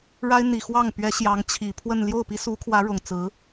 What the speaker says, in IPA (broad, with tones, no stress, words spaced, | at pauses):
ɻa˥ɪ̯n̪i˨˩xwɑ˥˩ŋ pɥɛ˧˥ ɕjɑ˧˥ŋt͡ɕʰi˨˩pʰwə˥˧n ljo˥˩ʊ̯pi˥su˧˥kʰwä˧˥ ɻʊ˨˩ŋt͡sɹ̩˧˥